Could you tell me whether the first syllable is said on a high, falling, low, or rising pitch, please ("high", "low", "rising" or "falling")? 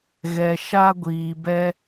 low